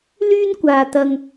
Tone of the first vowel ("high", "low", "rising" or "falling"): high